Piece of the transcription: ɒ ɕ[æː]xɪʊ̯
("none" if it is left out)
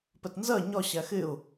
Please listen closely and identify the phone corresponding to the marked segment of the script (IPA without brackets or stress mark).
æ